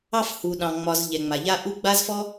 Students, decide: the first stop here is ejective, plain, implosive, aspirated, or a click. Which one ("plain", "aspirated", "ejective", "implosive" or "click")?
implosive